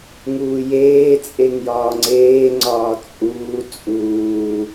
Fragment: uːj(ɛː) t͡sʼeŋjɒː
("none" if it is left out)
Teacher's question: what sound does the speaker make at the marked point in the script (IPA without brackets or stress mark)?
eː